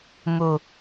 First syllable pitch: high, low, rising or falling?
low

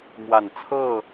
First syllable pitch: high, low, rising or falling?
low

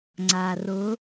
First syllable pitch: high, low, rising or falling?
low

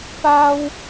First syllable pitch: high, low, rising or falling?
high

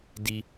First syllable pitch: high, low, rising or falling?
high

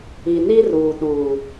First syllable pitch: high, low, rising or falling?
low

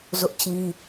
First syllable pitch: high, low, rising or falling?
high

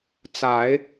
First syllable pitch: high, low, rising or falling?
rising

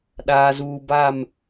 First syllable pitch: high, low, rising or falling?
low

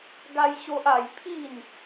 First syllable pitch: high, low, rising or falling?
high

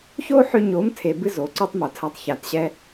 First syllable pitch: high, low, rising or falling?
high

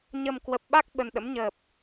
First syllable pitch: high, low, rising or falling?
low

